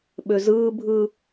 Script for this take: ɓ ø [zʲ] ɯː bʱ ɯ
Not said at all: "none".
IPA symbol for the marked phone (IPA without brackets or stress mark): z